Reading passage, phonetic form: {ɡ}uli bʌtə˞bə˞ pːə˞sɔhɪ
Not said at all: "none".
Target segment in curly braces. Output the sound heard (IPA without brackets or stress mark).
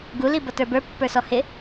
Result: ɡ